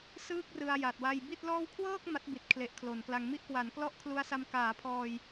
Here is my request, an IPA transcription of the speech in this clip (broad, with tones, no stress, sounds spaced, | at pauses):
s ɯː˥˩ k̚ r ɯ˧ a̯ j a˨˩ t̚ w a˧ j b i˥˩ t̚ l ɔː˥˩ w kʰ w ɤː˥˩ k̚ m a˦˥ t̚ b i˨˩ t̚ kʰ l e˨˩ ʔ kʰ l o˩˦ n k l a˧ ŋ m i˥˩ ʔ k w a˩˦ n k l ɔ˦˥ ʔ kʰ l u˧ a̯ s a˧ m k aː˩˦ pʰ ɔː˧ j